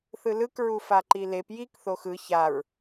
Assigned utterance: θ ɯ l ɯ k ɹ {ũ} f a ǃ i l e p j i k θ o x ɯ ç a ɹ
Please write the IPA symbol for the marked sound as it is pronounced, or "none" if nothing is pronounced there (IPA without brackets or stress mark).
u